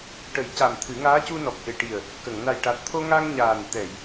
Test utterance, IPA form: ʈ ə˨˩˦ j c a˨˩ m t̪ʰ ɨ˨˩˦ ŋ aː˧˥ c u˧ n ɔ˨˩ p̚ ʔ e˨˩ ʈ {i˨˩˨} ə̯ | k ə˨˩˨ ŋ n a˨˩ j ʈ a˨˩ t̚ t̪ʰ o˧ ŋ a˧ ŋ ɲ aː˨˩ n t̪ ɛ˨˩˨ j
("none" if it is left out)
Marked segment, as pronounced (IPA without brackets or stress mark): i˨˩